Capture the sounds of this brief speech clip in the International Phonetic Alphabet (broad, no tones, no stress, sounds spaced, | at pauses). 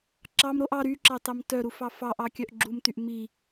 ǁ ɑ m ɾ o ʔ ɑ ɾ y ǁ ɑ t ɑ m t œ ɾ u f ɑ f ɑ ʔ ɑ kʲ œ ʔ ɡ͡ǁ u m t y ʔ m i